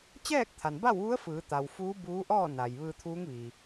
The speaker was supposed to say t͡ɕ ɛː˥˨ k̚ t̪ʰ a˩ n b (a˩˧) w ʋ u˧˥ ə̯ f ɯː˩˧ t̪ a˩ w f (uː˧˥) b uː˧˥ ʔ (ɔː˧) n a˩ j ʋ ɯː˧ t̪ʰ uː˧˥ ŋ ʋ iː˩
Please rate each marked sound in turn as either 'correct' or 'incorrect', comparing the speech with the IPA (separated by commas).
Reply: incorrect, correct, incorrect